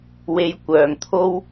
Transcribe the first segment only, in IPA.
w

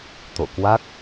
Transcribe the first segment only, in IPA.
t̪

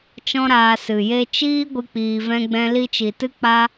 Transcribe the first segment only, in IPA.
t͡ʃ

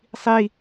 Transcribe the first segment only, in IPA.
sˤ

